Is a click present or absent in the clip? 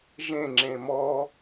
present